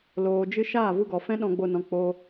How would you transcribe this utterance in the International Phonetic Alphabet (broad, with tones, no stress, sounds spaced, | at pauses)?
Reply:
l oː˨ d͡ʒ ɨ˧ ʃ aː˦˨ v u˧ ɡ ɔ˨ f ɛ̃˦ ɗ ɔ̃˧ ɡ͡b o˧ n ɔ̃˧ k͡p o˦